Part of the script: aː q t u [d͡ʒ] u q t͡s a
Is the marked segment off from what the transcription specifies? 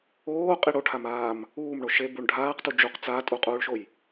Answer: no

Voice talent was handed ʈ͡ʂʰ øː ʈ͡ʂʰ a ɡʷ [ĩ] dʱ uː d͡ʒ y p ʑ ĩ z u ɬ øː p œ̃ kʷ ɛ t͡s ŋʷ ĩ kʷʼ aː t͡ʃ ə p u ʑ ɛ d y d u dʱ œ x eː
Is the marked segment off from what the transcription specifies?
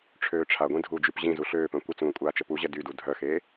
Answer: no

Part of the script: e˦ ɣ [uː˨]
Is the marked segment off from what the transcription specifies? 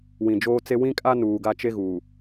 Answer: no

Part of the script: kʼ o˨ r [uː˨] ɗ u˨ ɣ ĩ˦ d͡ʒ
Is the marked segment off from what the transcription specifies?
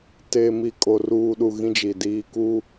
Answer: no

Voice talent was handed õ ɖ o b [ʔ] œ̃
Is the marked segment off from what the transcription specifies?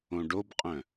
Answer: yes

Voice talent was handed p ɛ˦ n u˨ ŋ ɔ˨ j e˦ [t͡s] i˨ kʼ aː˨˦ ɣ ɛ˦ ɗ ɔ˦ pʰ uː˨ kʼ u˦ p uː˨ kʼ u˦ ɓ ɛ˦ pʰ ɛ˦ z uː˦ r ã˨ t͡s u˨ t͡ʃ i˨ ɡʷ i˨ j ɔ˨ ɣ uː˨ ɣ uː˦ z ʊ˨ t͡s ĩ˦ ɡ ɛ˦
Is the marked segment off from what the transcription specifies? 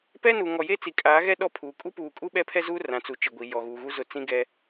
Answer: no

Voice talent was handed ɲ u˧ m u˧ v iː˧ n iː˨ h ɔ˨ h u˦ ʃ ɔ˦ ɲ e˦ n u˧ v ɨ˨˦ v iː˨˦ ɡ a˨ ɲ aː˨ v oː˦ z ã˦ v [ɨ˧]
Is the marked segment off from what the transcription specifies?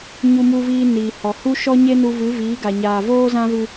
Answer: no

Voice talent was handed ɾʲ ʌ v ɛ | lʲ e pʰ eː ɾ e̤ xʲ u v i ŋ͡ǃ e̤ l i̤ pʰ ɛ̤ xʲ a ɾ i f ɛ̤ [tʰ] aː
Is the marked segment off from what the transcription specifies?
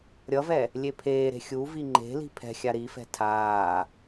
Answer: no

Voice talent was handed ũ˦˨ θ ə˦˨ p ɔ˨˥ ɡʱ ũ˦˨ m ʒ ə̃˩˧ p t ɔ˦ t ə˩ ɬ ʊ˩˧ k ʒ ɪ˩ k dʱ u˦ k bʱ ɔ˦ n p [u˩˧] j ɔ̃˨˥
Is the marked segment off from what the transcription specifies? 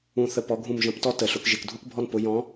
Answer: yes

